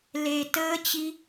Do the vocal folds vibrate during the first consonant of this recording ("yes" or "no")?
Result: yes